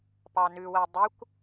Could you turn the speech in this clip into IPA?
p ɑ n ʉ w æ dˤ ʉ kʷ

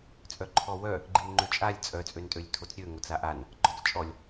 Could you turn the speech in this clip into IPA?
t͡sʼ œ ǃʰ ɔ w œ | ɡ͡ǃ i n ŋ͡ǃ ø t͡ʃʼ a lʲ t͡sʼ œ t͡sʼ ø n tʼ ø lʲ tʰ o t͡s ɾʲ ø ŋ o t͡s a ʔ a n | ɡ͡ǃ ɔ t͡s t͡ʃʼ ɔ lʲ

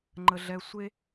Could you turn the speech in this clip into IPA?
ŋ͡ǃ ə˦ ɮ ɛ˦ sʷ e˦

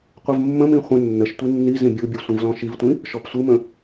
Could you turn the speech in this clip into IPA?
qʷ ə v mː ə̃ m ĩ χʷ ə̃ nː ə ʃ tʷ i nː i z ĩ bʲ u bʲ u sʷ ĩ v l ɔ̃ ʃ i v tʷ ĩ | ʃ ɔ p sʷ ɯ m ə̃

